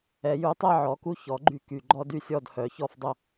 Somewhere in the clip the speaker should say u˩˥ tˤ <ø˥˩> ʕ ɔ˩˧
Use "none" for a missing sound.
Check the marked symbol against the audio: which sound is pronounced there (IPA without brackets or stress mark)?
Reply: ɛ˥˩